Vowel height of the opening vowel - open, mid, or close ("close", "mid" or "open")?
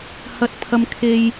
open